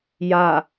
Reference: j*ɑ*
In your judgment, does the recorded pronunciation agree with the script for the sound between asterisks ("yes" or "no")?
no